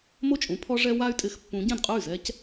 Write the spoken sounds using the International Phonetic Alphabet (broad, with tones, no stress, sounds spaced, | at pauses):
m o˥˩ t͡ʃʼ ũ˨˦ pʰ ɔ˦ ʐ ɛ˦ w a˦ y̯ tʼ ɪ˨˦ x pː ũ˨˦ ɟ ɛ̃˥˩ d qʼ ʊ˥˩ y̯ z ɛ˦ c